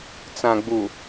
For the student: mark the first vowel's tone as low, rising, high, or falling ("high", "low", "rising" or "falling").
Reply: low